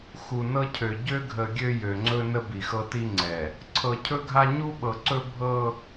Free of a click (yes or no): no